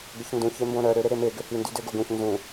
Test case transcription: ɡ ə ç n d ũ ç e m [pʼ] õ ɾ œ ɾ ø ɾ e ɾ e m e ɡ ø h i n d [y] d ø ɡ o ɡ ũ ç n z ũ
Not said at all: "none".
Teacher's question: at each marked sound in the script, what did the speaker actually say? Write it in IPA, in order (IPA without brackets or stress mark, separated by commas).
b, y